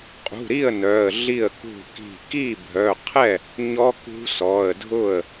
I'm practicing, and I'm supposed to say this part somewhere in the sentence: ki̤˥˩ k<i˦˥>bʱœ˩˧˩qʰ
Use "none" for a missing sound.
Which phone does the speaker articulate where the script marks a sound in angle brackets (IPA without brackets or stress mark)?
i˥˩